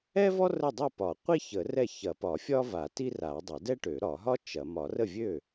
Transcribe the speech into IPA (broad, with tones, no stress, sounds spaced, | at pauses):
ɛ˥ v ɔ˥ r ə˥˩ dˤ ʊ˥˩ p ɒ˨˩˦ qʷ i˥ ç ə˨˩˦ r ɛ˥˩ ç ɐ˨˩˦ p ɒ˨˩˦ fʲ ɒ˥ v a˨˩˦ t i˥ r a˨˩˦ dˤ ɐ˨˩˦ d ɛ˥ ʈ ø˨˩˦ ɾ ɒ˨˩˦ ɦ ɒ˥ t͡ʃ ɐ˨˩˦ m ɒ˨˩˦ r ə˥˩ vʲ ø˥˩